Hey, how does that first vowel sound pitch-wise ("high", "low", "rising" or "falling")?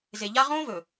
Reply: low